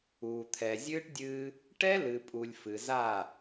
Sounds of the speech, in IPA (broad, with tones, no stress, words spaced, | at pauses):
uː˨ t̪ʰɛ˨zʲɨː˦ʈdʲɨː˦ | ʈɛ˦ lɨ˨pʼu˨lʲ fɨ˨za˦˨